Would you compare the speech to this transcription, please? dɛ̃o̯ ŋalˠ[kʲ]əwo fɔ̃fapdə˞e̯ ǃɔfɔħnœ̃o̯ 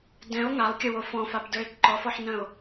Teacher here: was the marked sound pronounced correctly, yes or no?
yes